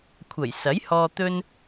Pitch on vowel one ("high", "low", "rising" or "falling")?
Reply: low